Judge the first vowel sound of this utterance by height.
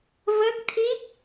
mid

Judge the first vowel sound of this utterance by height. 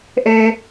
mid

